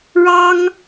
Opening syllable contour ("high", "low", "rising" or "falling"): high